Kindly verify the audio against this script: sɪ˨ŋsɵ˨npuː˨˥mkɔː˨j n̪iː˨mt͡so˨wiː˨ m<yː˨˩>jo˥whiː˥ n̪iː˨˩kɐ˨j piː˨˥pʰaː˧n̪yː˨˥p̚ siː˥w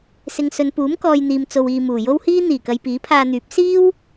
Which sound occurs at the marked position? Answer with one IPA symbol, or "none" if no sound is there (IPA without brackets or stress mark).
uː˨˩